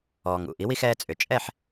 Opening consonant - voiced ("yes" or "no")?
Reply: yes